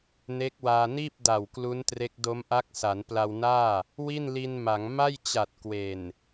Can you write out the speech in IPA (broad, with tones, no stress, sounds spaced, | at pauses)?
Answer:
n e˦˥ k̚ w aː˧ n iː˥˩ p̚ d a˨˩ w k l u˦˥ n t r e˦˥ k̚ d o˦˥ m ʔ a˦˥ k̚ s a˩˦ n p l a˧ w n aː˥˩ | w i˥˩ n l i˧ n m a˩˦ ŋ m a˥˩ j t͡ɕ a˨˩ t̚ k w e˨˩ n